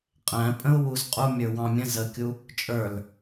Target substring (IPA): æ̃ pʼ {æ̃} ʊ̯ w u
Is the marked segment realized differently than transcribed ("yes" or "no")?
yes